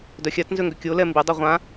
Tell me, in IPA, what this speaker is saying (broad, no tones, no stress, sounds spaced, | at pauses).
d œ xʲ a t n z ø ŋ ɡ ø kʲ o l ɛ m b i dˤ i ʁʷ ã